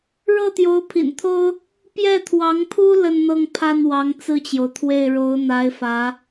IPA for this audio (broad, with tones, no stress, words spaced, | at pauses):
ɻɤ˥˩t̪jo˧˥ʊ̯ pʰḭ˨˩nt̪ʰo˥ʊ̯ | pjɛ˥˩t̪ʰwɑ˧˥ŋpʰu˥ lə˥˧nn̪ɤ˥˩ŋ pʰa˥nwɑ˧˥ŋ t͡sɹ̩˥˩t͡ɕjo˩ʊ̯t̪ʰwe˥˩ɪ̯ ɻo˧˥ʊ̯n̪a˧˥ɪ̯fä˧˥